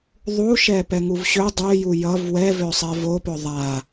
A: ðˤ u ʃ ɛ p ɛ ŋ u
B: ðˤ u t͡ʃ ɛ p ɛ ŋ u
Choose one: A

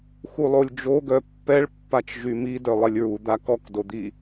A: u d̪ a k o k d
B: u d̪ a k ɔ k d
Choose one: B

